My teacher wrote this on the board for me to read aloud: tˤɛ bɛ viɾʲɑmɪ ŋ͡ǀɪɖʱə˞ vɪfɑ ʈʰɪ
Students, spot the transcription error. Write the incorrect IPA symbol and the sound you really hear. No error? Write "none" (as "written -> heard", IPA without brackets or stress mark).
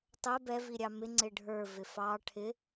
none